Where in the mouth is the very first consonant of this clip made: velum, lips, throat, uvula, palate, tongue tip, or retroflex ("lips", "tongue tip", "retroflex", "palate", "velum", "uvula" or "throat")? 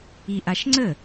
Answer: throat